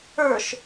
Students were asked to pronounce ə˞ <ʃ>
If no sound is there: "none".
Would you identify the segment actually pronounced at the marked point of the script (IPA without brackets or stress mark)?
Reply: ʃ